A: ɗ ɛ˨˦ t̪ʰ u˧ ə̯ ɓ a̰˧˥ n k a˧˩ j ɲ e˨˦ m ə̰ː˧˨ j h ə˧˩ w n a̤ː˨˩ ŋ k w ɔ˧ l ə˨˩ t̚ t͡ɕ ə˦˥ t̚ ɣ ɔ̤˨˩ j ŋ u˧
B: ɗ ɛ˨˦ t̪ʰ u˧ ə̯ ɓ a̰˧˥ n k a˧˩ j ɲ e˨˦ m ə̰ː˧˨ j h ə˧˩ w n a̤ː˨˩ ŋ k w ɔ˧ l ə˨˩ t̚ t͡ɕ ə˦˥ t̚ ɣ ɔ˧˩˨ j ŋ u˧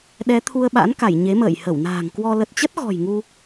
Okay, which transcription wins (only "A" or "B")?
A